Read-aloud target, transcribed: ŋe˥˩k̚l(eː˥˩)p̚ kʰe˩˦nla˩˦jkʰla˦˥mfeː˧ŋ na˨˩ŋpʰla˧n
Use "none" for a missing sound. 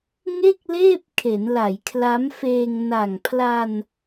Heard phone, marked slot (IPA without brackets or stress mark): eː˥˩